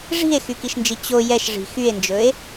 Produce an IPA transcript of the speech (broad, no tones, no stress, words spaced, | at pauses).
ʐi̤e̯xykiʃnd͡ʒi t͡ɕo jɛʃʐi̤ xye̯nd͡ʒɵe̯